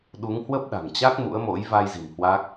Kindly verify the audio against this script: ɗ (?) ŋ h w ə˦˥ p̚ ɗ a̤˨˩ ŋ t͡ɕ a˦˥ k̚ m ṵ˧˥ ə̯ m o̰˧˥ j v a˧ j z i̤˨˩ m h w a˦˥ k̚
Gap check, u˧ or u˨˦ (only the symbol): u˨˦